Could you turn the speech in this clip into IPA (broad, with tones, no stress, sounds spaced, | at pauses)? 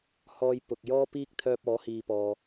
h ɔː˧ j p ʊ˨ k̚ j ɔː˥ p iː˥ k̚ t̪ʰ œː˧ p̚ ɔː˨˥ h iː˨ p ɔː˨